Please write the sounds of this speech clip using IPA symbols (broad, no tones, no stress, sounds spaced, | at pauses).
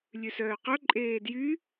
lʲ ʉ s œː q œ ǃʼ eː d j y